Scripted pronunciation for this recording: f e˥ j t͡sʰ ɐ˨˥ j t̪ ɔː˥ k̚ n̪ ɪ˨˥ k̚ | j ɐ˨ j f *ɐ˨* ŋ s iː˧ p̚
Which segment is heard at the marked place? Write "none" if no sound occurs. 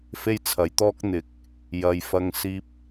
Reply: ɐ˧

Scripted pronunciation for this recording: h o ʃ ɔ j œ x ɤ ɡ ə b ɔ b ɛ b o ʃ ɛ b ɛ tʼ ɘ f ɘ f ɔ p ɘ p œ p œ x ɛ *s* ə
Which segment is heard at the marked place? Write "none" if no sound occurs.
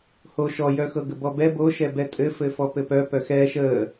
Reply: ʃ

